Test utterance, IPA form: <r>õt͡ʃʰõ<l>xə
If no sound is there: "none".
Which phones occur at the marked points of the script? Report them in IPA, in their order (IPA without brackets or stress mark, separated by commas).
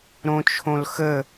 ɾ, l